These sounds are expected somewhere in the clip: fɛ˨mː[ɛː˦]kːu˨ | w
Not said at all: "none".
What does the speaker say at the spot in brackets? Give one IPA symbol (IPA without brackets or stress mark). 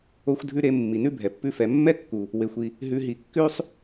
ɛ˦